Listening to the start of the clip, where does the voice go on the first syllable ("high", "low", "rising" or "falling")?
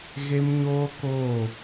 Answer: high